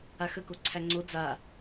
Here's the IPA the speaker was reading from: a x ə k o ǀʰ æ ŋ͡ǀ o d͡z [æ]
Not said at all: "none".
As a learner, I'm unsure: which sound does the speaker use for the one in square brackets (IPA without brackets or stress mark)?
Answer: a